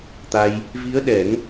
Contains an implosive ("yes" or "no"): yes